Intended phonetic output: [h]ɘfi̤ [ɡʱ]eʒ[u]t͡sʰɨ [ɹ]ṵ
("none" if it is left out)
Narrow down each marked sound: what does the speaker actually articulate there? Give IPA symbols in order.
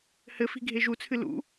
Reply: h, ɡʱ, u, l

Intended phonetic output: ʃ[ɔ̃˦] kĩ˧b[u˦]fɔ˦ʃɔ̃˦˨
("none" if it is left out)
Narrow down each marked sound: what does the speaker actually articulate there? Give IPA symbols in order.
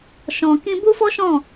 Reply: ɔ̃˨, u˦

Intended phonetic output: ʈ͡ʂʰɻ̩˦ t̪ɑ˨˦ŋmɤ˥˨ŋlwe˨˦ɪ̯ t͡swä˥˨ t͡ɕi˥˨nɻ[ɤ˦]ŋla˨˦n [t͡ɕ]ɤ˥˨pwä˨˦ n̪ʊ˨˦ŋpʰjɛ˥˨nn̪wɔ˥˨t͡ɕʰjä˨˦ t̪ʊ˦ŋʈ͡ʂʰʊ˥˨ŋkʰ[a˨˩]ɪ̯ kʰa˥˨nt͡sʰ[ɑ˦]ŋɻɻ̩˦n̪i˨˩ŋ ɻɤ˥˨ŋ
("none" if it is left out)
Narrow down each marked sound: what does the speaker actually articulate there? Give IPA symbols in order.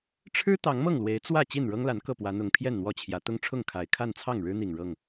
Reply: ɤ˦, k, a˨˩, ɑ˥˨

